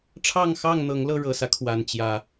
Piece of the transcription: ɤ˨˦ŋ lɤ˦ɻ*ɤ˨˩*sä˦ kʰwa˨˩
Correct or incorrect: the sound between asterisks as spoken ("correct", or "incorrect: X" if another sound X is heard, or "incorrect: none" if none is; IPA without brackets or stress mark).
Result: correct